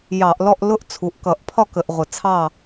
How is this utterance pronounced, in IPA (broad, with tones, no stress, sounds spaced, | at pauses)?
j ɑ˧˩˧ ʔ l ɔ˥˨ ʔ l ʊ˥˨ ʔ t͡sʰ u˩˧˩ ʔ k ʌ˧˩˧ ʔ pʰ ɒ˥˨ k ə˧˩˧ ʔ ʁʷ ə˧˩˧ t͡sʰ ɑ˥˨